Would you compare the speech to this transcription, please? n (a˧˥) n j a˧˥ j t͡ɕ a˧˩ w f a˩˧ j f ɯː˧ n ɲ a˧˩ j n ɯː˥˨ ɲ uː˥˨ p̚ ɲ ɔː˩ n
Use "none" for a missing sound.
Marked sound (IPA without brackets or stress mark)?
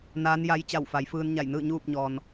aː˧˥